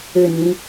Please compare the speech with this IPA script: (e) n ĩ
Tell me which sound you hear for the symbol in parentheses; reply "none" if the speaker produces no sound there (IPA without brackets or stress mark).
ɘ